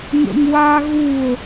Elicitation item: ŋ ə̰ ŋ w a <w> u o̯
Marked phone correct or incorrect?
incorrect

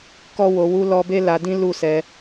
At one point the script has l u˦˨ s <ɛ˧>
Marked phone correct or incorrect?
correct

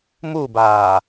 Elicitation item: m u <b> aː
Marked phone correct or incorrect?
correct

